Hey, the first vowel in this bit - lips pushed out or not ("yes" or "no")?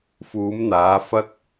yes